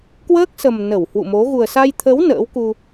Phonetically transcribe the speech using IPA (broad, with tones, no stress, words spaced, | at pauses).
kwəː˦˥k̚sə˨˩m nə˧˩whwṵ˧˨mo˨˦ ɣu˨˩ə̯sa˧j t̪ʰə˨˦w nə̰ː˧˥wku˧